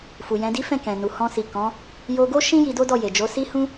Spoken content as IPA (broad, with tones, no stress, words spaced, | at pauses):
fu˨jɛ̃˨˦di˦ fɛ̃˦˨kɛ̃˨ nu˨ hɔ̃˧si˨kɔ̃˨˦ | jo˧ɡo˦ ʃĩ˦ ji˧do˦ dɔ˦˨je˨ d͡ʒo˨˦si˦hũ˦